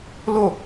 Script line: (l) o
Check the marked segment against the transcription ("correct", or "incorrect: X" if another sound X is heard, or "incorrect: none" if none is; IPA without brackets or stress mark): correct